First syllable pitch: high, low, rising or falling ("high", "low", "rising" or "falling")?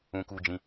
high